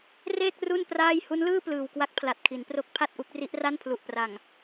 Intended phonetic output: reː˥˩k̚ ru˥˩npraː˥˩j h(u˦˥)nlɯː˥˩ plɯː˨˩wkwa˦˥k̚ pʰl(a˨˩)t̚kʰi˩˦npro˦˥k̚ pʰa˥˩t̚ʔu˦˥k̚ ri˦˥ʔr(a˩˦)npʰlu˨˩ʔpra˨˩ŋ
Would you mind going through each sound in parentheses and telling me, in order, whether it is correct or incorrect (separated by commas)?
correct, correct, incorrect